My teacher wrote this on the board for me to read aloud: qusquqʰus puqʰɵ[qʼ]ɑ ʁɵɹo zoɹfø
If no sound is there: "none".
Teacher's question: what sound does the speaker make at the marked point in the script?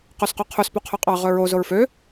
qʼ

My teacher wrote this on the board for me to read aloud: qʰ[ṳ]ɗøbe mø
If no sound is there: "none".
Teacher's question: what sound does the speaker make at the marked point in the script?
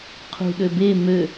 ṳ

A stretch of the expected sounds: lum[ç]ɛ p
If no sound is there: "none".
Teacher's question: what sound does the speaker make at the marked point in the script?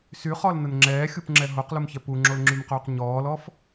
ç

